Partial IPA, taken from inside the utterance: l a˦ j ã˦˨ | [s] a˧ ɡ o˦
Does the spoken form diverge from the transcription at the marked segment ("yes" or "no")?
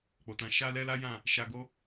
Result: yes